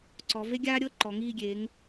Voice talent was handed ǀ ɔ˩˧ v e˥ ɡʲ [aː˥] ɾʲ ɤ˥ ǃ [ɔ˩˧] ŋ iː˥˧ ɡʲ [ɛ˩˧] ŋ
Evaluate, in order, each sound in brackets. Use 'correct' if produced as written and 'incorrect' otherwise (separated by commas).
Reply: correct, correct, incorrect